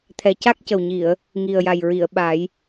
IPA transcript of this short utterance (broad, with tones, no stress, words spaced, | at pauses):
t̪ʰɛ˨˩ca˦˥k̚cə˨˩wɲi˨˩˨ə̯ | ŋi˨˩ə̯ja˨˩jɹi˨˩˨ə̯ɓa˨˩˦j